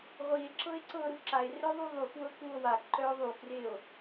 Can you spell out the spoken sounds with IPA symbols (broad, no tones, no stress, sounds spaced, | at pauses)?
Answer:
ʁʷ i e̯ ǁ ɤ e̯ ǀ ɤ ɾ u ǁ a e̯ r œ ðˤ u ðˤ u f w ɤ k u o̯ w a k ǃ œ o̯ ðˤ u k r e o̯